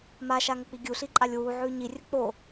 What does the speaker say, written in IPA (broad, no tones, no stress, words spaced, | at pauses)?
maʃaŋək͡pi ɡʲuɬiǃʼalʲ wuʕʉ ɲirʲə k͡po